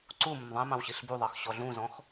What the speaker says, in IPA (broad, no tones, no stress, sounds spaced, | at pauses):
ǀ u m ʊ m ðˤ ɛ̃ m ɑ̃ w ɕ i ɬ b u ðˤ ɑ x ɕ ɔ ɮ ũ z ɔ̃ x